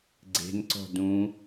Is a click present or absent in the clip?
present